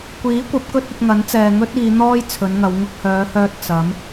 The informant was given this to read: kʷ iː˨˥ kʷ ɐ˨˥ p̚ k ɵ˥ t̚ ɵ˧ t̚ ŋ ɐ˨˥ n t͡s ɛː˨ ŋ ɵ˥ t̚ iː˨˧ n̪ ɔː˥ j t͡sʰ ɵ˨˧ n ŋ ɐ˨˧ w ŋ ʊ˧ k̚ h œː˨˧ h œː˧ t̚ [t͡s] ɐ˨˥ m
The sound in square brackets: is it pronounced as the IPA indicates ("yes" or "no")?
yes